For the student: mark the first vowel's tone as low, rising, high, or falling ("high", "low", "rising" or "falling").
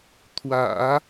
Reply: low